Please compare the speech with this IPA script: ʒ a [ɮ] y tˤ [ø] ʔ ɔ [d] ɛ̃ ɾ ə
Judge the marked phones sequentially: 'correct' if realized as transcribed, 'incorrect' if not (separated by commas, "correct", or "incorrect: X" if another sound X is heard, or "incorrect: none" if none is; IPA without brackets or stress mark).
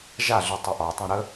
correct, correct, incorrect: tˤ